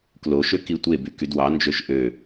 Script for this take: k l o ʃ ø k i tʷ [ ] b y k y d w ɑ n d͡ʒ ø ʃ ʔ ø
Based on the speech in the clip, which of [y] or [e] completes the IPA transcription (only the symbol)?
e